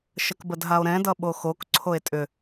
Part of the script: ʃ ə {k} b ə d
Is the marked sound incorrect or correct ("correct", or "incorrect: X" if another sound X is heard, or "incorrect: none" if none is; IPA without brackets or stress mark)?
correct